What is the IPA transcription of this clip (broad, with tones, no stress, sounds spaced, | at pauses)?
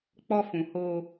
k͡p ɔ˦ f ũ˧ h o˧